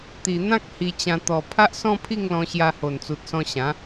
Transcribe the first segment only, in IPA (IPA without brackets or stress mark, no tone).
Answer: t̪